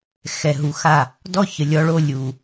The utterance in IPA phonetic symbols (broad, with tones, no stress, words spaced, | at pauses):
xɛ˨ɦu˨ xa˦˨ | dɔ˦çə˨ lʲɔ˧ɭo˧ lʲu˨